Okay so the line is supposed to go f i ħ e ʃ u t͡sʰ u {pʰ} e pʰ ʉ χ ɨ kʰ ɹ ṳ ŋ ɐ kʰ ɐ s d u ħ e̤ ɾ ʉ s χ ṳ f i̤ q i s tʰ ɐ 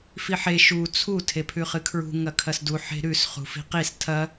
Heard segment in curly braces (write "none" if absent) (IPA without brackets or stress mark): tʰ